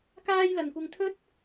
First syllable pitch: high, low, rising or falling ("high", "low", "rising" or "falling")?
high